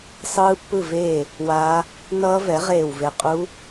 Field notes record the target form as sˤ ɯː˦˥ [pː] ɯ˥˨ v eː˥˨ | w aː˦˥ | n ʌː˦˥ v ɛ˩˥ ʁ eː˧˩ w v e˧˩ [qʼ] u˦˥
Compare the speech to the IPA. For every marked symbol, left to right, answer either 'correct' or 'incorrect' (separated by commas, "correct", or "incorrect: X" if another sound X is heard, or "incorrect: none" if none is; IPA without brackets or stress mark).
correct, correct